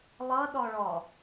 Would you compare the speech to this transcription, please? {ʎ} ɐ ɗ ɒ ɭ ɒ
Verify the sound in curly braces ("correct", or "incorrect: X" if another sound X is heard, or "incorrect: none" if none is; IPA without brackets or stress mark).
incorrect: lˠ